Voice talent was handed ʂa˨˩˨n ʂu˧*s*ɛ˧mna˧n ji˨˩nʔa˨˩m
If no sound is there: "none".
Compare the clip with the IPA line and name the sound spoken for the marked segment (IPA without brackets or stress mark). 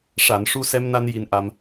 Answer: s